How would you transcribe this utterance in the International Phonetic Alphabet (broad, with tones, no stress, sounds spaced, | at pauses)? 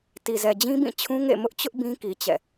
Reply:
t i˨ z ɛ˨ d͡ʑ ĩ˦ b ĩ˦˨ t͡ɕʰ ũ˦ ŋ ḛ˦˨ m ʊ˦ ʔ t͡ɕ ʊ˦ ʔ b ĩ˦ k i˨ t͡ɕ ɛ̰˦˨